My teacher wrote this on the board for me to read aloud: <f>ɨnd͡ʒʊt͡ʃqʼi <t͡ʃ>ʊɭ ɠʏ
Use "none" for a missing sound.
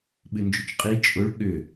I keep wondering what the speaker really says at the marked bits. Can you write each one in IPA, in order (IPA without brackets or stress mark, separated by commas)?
ɓ, t͡ʃʼ